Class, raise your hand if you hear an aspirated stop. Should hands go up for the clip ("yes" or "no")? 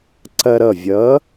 no